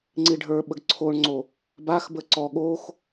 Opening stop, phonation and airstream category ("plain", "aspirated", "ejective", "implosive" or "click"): click